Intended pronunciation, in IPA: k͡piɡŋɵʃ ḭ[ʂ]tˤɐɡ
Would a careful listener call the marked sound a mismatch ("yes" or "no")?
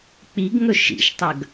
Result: yes